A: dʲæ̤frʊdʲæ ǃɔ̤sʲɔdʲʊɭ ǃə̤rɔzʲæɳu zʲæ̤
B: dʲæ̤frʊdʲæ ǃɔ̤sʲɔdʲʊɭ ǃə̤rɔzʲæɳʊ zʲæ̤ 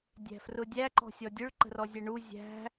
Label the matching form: A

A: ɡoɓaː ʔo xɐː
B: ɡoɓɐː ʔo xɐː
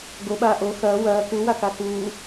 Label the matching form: A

